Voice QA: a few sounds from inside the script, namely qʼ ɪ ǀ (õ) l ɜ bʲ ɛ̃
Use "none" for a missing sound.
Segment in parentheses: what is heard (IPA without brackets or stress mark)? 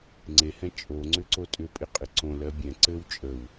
õ